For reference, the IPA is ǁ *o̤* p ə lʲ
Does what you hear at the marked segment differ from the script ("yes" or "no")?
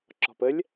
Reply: yes